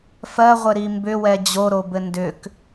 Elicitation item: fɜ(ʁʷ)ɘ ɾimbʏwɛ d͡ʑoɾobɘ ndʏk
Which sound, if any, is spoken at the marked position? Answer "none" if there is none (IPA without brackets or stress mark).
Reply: ʁʷ